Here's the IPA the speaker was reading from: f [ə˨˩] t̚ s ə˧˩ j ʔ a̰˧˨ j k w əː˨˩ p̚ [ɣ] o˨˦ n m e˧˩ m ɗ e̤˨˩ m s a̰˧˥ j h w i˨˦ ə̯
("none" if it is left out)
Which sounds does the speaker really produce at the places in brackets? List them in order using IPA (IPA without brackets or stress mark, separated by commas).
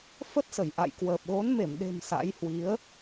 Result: ə˦˥, ɣ